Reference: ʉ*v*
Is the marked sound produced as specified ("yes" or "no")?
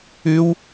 no